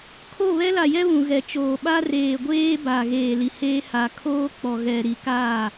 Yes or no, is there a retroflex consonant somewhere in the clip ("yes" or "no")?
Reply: no